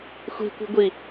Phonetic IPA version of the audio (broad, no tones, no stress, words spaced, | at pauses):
xʷi̤kʷi̤ɡʷi